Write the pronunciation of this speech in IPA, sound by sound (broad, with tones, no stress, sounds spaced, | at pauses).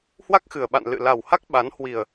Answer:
h w a˦˥ k̚ x ɨ˨˩ ə̯ ɓ a̰˧˨ n l ɨ̰˧˨ l a˨˩ w h a˦˥ k̚ ɓ a˨˦ n h w i˨˩ ə̯